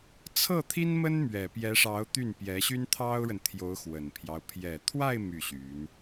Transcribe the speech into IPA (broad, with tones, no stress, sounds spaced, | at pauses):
t͡sʰ ɤ˥˩ t̪ʰ i˥ n m ə˥ n m ɥ ɛ˨˩ p j ɛ˧˥ ʂ ɑ˧˥ ʊ̯ t̪ y˥˩ n p j ɛ˧˥ ɕ y˥ n t̪ʰ ɑ˥ ʊ̯ ɻ ə˨ n t̪ʰ j o˧˥ ʊ̯ x w ə˨˩ n pʰ j ɑ˦ ʊ̯ pʰ j ɛ˨˩ t̪ʰ w a˥˧ ɪ̯ m y˥˩ ɕ y˧˥ n